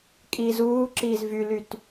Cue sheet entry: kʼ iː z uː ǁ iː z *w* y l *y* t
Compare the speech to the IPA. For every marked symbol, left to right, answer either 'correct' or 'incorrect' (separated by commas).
incorrect, correct